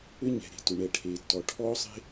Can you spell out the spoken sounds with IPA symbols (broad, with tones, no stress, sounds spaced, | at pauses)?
ʏ˥ ɲ ɛ̤˩ ɾ e̤˩ t ʏ˩ ɳ ɛ˩ ʈʰ eː˩ tː ɔ˩ ʈʰ ɔː˥ sˤ e̤˥